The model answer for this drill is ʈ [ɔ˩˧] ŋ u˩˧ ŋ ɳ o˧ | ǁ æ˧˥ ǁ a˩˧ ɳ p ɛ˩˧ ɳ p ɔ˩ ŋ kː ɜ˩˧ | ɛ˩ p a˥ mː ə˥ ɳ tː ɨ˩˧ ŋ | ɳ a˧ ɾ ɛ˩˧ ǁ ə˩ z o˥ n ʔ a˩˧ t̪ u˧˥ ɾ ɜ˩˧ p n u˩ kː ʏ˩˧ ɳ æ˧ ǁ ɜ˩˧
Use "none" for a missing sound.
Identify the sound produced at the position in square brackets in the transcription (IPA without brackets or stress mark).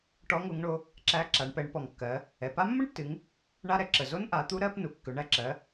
ɔ˧˥